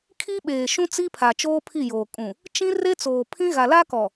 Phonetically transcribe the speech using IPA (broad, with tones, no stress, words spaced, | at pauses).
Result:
kʰi˦ɓeː˨ ʃũ˦t͡si˦pʰa˨ t͡ʃoː˦pʰi˦˨joː˨ kʼũ˨ | t͡ʃĩ˦ re˦t͡soː˨ pʰĩ˦ ɣa˨la˦kɔ˨